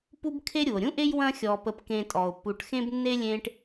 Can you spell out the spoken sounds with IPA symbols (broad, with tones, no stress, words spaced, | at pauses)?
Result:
pu˦bkʰe˦ ɾʲu˩o̯ɾʲũ˥ʔe˥j wɐ̃˦xʲɔ˨ pə˨pkẽ˨ tʼɔ˩o̯pːu˨ʈxẽ˥bnːe˥ lʲẽ˦ʈ